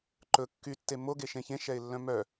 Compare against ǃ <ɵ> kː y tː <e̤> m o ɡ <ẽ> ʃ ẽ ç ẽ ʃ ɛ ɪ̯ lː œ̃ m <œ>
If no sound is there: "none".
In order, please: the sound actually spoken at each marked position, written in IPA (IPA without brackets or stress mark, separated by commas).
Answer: ɵ, e, e, œ